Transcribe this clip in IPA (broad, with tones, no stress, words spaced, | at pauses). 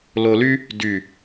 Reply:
lo˧ly˥ | dy˧˩